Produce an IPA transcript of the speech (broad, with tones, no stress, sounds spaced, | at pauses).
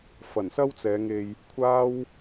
f ɐ˨˩ n s ɐ˥ w t͡s ɛː˨˧ ŋ e˧ j | kʷʰ aː˥ w